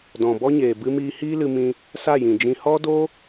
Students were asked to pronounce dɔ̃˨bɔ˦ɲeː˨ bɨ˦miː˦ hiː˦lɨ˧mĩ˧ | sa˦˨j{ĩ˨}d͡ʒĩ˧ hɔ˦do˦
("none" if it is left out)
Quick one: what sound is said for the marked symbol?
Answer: ĩ˨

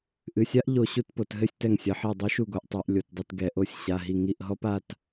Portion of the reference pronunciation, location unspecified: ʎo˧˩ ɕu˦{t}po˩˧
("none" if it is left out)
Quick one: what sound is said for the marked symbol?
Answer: t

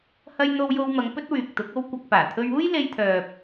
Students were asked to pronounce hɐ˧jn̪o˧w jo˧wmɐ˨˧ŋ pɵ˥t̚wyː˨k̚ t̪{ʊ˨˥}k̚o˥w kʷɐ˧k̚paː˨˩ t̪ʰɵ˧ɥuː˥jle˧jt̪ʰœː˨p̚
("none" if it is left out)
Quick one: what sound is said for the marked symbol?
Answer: ʊ˨˥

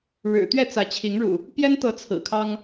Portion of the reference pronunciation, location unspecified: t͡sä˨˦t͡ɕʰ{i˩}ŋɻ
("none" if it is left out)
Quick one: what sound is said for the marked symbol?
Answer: i˨˦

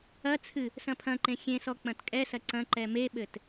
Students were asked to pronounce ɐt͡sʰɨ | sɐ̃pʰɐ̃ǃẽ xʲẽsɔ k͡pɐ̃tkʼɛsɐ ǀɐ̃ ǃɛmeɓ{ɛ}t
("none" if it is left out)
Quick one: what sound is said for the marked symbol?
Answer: ɘ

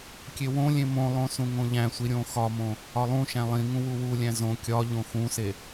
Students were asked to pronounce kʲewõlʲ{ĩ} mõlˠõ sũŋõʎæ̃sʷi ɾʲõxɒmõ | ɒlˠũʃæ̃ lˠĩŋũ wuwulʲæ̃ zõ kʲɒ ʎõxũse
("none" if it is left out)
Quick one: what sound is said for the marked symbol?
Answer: ẽ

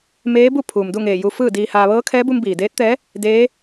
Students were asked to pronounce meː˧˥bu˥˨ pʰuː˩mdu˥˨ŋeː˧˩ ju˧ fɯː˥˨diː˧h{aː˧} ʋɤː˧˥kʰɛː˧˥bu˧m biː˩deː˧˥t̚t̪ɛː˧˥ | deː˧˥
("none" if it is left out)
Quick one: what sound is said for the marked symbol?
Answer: aː˧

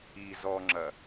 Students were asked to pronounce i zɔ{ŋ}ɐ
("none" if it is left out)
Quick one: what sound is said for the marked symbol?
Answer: ŋ͡ǁ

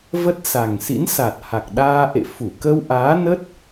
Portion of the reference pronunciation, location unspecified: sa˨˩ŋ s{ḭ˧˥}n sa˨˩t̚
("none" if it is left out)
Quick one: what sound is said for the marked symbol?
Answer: ḭ˧˥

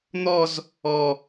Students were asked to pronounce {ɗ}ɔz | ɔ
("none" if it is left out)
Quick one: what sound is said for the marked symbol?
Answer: n̪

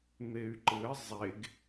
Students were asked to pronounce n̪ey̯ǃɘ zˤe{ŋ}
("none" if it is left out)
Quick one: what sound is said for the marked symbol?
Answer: ɡ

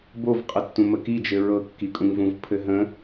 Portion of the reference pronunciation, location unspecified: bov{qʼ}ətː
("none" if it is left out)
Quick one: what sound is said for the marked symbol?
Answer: qʼ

